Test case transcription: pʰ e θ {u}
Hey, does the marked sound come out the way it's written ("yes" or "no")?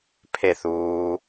no